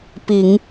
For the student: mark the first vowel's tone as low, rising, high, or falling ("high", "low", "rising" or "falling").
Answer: low